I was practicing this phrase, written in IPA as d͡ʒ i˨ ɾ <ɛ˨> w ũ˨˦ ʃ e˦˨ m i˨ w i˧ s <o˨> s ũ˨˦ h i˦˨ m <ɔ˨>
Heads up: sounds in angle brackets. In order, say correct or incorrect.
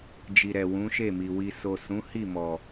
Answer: correct, correct, correct

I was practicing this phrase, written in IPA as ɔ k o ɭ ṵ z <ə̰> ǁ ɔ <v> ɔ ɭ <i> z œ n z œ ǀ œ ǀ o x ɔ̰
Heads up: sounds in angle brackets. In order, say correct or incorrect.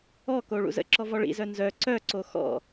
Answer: correct, correct, incorrect

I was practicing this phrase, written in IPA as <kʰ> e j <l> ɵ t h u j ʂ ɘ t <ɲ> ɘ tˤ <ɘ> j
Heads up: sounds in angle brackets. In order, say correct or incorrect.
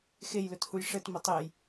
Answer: incorrect, correct, incorrect, incorrect

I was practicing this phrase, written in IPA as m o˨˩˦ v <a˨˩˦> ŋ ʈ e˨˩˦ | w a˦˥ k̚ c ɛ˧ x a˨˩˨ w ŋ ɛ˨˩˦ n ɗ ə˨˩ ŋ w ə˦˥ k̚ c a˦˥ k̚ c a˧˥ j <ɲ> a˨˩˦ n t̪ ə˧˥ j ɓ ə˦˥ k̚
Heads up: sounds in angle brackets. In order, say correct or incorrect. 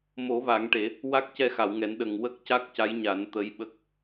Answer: correct, correct

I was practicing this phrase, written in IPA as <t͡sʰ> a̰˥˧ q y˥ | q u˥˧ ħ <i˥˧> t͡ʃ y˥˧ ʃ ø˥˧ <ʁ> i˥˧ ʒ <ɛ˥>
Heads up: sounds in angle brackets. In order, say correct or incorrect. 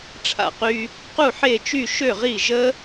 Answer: incorrect, incorrect, correct, incorrect

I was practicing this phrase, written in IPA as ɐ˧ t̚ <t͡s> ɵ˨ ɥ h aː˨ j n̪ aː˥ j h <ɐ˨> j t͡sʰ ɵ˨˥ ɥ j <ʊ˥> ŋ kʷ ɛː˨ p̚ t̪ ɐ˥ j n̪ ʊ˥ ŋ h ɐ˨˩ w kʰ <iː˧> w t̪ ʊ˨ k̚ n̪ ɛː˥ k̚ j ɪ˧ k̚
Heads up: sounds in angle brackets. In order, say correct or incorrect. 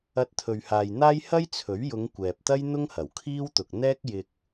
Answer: incorrect, incorrect, incorrect, incorrect

